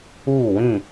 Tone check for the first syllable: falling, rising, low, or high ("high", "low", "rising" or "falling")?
falling